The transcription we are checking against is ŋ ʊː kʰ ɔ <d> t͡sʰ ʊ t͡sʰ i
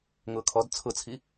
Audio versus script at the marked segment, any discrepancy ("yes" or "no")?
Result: no